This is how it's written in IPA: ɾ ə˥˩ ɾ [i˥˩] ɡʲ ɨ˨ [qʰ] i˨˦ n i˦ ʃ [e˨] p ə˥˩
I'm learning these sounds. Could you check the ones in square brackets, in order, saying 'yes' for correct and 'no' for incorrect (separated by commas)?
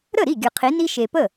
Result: yes, yes, yes